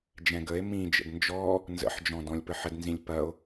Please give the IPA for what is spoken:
d͡ʒ ɛ̃ ɡ ə e̯ m ĩ d͡ʒ ə̰ d n d͡ʒ ɔ | n z ə̰ ħ d͡ʒ ɔ̃ d ɔ̃ lʲ p ə ħ ə d n z ĩ lʲ p ɐ o̯

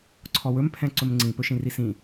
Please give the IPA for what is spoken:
ǀʰ ɔ w ɵ m pʰ ɛ̃ ǀ ɵ m ŋ͡ǀ ĩ p ɵ ʃ ĩ r i s ĩ

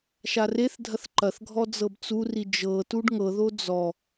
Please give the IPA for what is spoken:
ʃ a r e θ dʱ ɐ θ ǃ ɐ θ ɡʱ ɔ d͡z ɤ b t͡s u r i d͡ʒ ɤ t u ɖ ŋ ɤ ð o d͡z ɔ

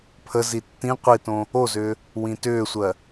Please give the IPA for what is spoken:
pʰ ə z i tː ĩ qʷ i t õ | o z ʏː | w ĩ t ʏː sʷ ɜ

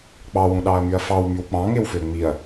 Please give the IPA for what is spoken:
k͡p ɑ w ũ ɗ ɑ ɐ̯ m y ɐ̯ f ɑ w m y w k͡p ɑ̃ ŋ e w f ø ŋ͡m i ɐ̯

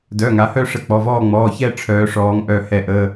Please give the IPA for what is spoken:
d œ˩˧˩ ŋ a˩˧ h œ˦˨ ʂ ə˦˨ k͡p ɔ˩˧˩ v ɔː˦˨ ŋ͡m ɔː˩˧˩ ç ɛ˦˨ ʈ͡ʂʰ œː˩˧ ʂ ɔː˩˧ ŋ ʔ œ˧˩˧ h ɛ˧˩˧ ʔ əː˩˧˩

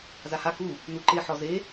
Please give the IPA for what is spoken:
z a h a k u | n u ǃ e ħ ɔ z e

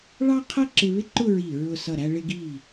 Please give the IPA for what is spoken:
ɭ ɑ˥ qʰ ʌ˥ ǁ ɪ˧ β ɪ˥ ǃ ʊ˥˧ ɹ i˧˩ ɹ ʊ˧˩ s ʌ˧˩ ɾ æ˧ ɭ ɪ˧ ɡ i˧˩

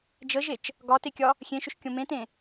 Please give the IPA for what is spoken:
d͡ʒ ə ʒ e t͡ʃ | ɡ ɒ t e kʲ ɒ | xʲ ẽ ʃ ʏ ʃ kʲ õ m ẽ t ẽ

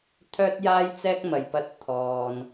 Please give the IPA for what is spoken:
t̪ʰ œː˥ t̚ j aː˥ j t͡s ɛː˥ k̚ m ɐ˨ j p ɐ˧ t̚ t̪ʰ ɔː˨ n

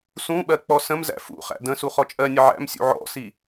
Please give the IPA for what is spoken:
s ũ ɓ ɜ k͡p ɔ s ə̃ m z æ̰ f ṵ χ æ̰ d ə̃ s u χ ɔ t͡ʃʼ ɜ nʲ ə ʕ æ̰ m sʲ ṵ ʕ ɔ̰ s i

